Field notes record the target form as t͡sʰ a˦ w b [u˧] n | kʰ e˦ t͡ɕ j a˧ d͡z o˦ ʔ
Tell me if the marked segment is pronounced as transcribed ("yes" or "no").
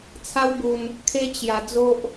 yes